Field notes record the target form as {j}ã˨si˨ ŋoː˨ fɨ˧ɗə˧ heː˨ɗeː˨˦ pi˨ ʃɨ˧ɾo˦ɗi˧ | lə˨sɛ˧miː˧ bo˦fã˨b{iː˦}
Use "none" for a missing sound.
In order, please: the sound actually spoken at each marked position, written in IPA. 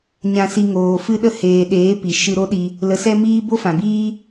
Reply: ɲ, iː˦

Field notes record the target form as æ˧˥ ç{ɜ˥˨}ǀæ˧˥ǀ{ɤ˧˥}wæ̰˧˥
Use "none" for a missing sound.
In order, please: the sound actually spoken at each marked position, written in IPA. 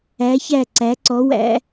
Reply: æ˥˨, ɔ˧˥

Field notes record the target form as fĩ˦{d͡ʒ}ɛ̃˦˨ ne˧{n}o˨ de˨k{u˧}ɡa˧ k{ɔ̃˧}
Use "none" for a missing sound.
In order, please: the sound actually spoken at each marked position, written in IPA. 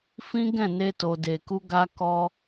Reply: ɡ, t, u˧, ɔ˧

